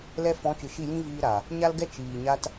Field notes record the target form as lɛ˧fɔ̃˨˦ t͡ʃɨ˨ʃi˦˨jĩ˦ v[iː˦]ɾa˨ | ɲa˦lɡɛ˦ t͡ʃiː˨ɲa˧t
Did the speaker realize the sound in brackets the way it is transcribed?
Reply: yes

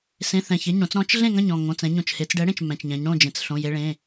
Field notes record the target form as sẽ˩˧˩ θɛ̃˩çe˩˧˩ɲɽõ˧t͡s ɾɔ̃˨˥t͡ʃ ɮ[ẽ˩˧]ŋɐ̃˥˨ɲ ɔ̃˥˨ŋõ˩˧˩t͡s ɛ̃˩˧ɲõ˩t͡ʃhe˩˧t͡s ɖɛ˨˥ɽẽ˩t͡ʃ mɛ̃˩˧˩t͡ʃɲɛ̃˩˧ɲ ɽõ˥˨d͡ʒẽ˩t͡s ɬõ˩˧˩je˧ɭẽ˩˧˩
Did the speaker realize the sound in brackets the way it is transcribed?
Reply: no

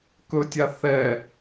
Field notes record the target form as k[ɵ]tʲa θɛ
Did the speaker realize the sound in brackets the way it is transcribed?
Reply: yes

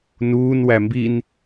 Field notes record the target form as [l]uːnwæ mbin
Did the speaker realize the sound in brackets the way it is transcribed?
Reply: no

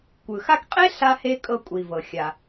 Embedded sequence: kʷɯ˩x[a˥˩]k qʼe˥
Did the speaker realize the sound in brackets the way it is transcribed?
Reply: no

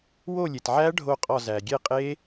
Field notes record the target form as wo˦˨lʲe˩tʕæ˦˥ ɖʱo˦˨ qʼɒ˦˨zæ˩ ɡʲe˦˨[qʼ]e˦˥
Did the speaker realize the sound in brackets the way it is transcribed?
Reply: yes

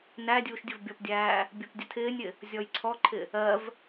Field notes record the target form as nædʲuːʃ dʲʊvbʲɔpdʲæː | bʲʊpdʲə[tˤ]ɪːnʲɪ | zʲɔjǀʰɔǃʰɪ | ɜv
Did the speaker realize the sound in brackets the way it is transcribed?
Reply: no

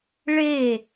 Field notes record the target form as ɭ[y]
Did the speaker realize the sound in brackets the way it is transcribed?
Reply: no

